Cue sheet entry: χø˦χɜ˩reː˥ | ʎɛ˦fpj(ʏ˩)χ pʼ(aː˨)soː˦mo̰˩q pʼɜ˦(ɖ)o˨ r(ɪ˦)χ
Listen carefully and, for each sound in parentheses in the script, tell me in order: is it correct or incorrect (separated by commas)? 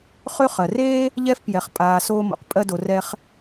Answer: incorrect, correct, incorrect, incorrect